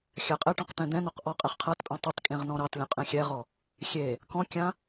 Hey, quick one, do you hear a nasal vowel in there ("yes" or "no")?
yes